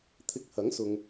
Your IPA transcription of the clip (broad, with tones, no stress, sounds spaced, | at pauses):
t̪ʰ ɪ˧ k̚ h ɐ˨˥ ŋ s ʊ˨ ŋ